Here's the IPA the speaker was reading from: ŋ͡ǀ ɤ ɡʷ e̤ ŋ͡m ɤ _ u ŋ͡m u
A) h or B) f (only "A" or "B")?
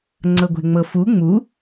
B